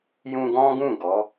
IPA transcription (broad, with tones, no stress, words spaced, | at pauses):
jũ˧ ɡɔ̃˦ɡũ˦˨ ɡɔ˨˦